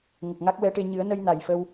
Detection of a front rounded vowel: absent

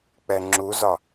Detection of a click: present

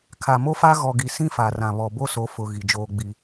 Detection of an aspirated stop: present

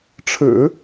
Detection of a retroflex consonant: present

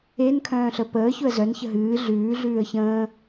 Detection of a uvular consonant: absent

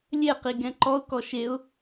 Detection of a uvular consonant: present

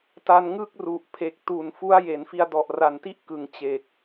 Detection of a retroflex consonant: absent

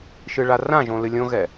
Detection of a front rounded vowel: absent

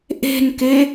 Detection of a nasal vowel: absent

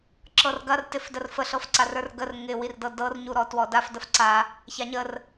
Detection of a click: present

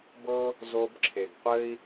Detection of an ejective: absent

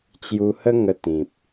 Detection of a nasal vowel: present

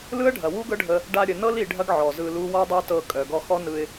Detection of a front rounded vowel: present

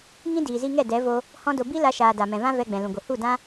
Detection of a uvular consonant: absent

